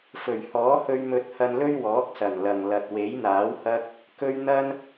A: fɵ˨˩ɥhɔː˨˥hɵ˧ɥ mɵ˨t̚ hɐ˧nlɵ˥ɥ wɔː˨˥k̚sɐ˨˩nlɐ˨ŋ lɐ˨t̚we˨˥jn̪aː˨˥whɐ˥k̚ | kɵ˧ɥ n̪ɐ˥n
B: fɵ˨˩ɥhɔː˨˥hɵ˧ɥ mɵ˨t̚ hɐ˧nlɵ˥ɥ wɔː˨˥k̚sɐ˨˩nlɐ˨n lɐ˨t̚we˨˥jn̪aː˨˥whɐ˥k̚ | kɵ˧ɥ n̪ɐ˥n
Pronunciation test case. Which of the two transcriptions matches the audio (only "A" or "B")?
A